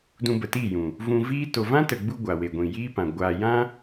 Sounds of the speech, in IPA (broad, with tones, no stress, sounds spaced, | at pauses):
d ũ˧ b ə˨ t i˦˨ j ũ˨ | v ũ˧ v iː˦ t o˨ v ã˦ t ə˨ ɡ͡b u˧ ɡʷ a˨ w e˨ ɡʷ ĩ˨ j iː˦ p ã˨ ɡʷ aː˨ j ã˦